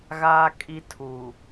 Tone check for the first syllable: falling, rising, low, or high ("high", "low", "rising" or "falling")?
high